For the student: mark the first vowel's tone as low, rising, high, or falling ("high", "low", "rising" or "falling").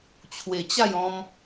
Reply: low